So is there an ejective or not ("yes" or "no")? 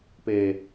no